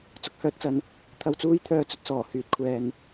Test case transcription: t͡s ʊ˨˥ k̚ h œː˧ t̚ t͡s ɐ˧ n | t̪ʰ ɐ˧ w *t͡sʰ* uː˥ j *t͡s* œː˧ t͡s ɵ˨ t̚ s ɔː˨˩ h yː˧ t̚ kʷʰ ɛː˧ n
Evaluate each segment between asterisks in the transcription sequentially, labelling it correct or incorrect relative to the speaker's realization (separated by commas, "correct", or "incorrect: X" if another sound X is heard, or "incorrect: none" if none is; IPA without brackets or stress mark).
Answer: incorrect: t͡s, incorrect: t̪ʰ